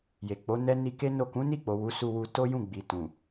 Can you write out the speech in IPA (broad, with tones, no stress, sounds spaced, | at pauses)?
j e˨ k͡p o˨˦ n ɛ˦ n i˧ k e˦ n o˦˨ k ũ˨˦ n i˦˨ k͡p o˨ w u˨˦ s u˧ w u˧ t o˦ j ũ˦˨ ɡ͡b i˨ t ũ˨